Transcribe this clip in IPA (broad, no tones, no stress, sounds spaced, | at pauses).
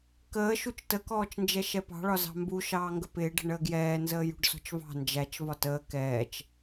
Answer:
k əː ʃ u t͡ʃ t ə k ɔː t͡ʃ n d͡ʒ ɛ ʃ ɛ p ɑ̤ ɭ ɒ z ɑ̤ m b u ʃ ɑː ŋ ɡ ə p ɪː ɖ ə̤ ɳ əː ɡ j ɛː n z əː j ṳ ɖ s ɔ̤ t͡ʃ v ɑ̤ n d͡ʒ æ t͡ʃ v ɒ t əː k ɛː t͡ʃ